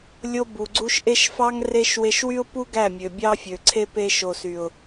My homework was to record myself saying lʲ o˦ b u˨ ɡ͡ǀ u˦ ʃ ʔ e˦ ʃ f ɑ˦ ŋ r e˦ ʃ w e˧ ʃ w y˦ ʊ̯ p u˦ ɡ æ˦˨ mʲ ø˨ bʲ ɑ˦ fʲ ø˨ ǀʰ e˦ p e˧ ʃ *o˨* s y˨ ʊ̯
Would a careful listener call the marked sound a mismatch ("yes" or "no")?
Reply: no